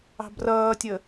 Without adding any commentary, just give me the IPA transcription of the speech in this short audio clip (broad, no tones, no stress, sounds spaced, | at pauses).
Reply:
ɑ̤ b r ʌː tʲ ə